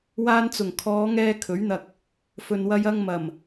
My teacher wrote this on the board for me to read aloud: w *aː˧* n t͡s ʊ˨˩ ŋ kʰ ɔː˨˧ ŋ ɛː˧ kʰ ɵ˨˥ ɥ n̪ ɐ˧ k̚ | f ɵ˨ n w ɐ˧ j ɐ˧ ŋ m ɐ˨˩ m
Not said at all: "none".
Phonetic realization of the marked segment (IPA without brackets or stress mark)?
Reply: aː˧